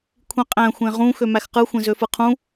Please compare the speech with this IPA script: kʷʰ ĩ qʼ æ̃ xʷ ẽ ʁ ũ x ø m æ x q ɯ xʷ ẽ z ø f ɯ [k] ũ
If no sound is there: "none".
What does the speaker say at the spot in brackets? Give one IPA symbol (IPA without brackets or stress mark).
qʰ